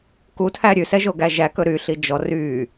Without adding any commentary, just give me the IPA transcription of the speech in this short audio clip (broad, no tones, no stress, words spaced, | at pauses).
kutʰæ ɾʲʉsɛʒoɡæ ʒækɵ ɾyɬi d͡ʒɔ ry